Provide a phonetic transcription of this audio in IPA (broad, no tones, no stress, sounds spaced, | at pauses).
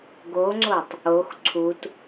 ɡ o ŋ͡ǀ o tˤ | o x ǀʰ u t